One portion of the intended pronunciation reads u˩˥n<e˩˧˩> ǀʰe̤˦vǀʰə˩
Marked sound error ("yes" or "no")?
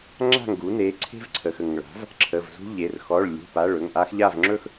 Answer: no